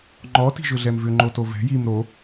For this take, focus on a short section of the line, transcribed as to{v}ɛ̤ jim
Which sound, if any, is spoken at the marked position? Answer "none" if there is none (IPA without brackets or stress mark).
v